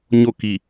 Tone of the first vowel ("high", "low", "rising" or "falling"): falling